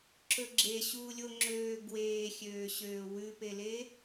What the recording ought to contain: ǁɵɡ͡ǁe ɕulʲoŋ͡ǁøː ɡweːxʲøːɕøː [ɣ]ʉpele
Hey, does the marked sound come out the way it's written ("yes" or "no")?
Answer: no